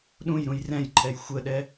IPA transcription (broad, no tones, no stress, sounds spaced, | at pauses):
ɗ ũ j ɾ ũ j r ɛ̃ j ǃʰ ɛ j xʷ ə ɗ ɛ